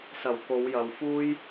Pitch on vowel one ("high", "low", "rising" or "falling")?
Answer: low